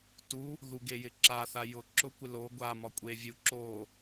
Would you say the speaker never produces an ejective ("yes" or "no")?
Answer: no